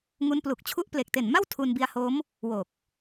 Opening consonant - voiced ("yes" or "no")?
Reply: yes